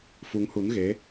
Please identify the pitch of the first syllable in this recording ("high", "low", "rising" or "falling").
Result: rising